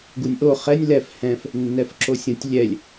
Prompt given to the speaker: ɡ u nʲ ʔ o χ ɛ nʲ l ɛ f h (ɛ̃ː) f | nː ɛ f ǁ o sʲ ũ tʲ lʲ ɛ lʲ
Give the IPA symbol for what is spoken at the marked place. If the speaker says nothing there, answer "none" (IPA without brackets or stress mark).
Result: ɛ̃